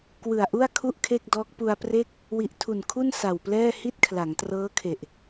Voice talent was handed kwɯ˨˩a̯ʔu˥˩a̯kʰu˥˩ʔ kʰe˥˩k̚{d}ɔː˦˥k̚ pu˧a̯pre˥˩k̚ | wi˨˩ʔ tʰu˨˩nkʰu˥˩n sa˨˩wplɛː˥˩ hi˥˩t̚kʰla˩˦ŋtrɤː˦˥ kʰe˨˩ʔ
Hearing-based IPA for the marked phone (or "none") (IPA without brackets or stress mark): d